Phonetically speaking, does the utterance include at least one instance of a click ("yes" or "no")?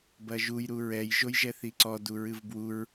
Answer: yes